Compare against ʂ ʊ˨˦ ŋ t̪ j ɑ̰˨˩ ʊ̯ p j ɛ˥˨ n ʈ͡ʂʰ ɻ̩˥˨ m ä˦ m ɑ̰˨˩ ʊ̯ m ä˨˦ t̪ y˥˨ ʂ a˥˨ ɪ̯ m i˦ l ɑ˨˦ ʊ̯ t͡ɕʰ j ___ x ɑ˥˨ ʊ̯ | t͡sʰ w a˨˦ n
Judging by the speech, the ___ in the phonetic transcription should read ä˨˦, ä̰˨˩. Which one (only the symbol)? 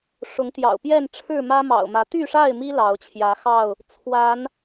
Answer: ä˨˦